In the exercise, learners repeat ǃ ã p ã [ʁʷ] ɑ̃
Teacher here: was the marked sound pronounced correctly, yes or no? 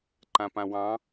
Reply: no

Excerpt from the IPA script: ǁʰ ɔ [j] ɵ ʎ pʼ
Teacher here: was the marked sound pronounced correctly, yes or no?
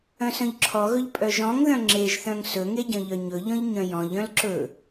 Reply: no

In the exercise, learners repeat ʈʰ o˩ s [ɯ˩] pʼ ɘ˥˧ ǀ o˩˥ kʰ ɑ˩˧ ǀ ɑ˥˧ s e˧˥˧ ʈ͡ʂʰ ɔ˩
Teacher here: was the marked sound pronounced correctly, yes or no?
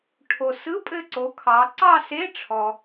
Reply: no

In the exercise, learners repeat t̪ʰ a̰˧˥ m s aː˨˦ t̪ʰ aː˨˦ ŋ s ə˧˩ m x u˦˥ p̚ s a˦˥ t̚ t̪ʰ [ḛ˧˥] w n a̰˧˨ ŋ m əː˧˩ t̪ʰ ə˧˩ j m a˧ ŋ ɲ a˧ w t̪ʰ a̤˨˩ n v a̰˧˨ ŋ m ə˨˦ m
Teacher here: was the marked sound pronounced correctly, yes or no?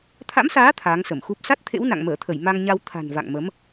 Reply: yes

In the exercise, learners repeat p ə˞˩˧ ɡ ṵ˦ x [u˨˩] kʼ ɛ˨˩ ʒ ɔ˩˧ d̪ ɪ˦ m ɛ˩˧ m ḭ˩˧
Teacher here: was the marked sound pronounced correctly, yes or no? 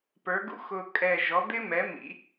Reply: no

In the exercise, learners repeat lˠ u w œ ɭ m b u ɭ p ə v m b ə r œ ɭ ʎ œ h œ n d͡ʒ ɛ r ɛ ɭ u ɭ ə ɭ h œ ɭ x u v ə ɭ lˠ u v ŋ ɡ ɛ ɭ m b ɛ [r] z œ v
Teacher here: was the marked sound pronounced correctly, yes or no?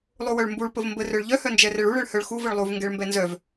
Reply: no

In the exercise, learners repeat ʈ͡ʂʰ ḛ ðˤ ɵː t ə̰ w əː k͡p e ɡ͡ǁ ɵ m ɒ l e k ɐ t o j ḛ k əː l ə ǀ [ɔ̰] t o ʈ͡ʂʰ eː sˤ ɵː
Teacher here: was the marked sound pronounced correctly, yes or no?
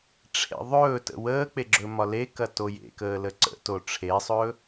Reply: no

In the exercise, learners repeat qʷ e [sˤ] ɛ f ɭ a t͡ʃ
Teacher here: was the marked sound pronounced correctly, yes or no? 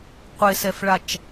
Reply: no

